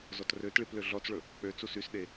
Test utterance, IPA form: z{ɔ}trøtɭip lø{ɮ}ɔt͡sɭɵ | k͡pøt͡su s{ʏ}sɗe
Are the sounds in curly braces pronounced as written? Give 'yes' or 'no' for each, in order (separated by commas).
yes, yes, no